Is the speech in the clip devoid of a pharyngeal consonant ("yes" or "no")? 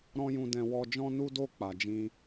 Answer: yes